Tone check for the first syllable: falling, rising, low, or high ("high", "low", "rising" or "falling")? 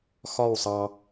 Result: falling